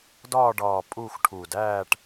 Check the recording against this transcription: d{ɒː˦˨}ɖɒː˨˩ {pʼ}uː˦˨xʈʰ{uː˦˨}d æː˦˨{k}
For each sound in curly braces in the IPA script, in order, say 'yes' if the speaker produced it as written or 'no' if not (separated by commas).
yes, yes, no, no